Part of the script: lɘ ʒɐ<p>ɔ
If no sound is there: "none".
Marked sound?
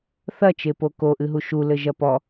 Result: p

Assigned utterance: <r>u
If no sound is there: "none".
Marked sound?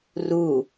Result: r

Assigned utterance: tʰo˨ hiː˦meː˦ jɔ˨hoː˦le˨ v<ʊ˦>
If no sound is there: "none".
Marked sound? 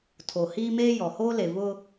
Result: ʊ˦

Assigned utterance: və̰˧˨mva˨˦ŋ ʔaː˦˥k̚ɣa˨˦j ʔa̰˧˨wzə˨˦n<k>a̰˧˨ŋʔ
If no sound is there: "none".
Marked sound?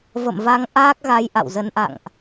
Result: ʔ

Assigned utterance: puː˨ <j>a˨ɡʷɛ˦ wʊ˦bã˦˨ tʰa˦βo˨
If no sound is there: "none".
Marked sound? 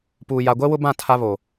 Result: j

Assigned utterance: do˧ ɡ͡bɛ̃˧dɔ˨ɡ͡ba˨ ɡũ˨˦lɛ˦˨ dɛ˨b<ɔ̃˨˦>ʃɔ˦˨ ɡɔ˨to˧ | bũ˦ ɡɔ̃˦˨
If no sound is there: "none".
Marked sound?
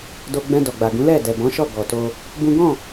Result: ɔ̃˨˦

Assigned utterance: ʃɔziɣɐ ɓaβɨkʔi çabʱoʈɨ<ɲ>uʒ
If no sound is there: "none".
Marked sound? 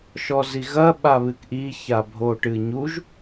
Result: ɲ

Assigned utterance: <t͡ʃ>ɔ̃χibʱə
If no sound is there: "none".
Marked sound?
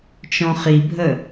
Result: t͡ʃ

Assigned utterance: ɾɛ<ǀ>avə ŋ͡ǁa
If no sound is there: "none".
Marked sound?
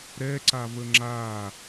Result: ǀ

